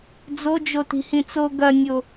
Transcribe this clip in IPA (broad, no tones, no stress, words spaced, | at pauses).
d͡zo d͡ʒoti̤hĩt͡so ɡɐnʲo